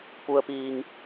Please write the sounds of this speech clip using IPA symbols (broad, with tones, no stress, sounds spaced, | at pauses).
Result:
p u˩ ə̯ p iː˩ ŋ